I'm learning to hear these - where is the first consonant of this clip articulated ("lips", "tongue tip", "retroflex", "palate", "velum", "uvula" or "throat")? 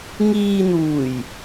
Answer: velum